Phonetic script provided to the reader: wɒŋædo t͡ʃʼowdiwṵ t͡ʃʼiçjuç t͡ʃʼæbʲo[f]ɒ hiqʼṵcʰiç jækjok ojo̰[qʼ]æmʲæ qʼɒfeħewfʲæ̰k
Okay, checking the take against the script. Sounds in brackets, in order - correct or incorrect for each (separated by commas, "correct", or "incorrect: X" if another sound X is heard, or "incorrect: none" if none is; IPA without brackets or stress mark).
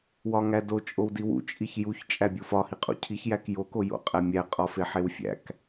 correct, correct